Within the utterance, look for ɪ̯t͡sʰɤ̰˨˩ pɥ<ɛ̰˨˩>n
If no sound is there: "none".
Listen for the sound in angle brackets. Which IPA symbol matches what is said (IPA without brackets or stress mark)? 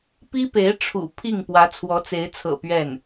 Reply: ɛ˥˩